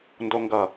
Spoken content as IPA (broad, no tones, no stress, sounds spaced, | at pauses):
n d o ŋ ɡ ʌ